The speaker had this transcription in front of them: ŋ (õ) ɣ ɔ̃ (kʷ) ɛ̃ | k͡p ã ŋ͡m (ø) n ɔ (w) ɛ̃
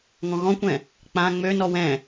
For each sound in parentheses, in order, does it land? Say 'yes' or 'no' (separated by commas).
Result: no, yes, yes, yes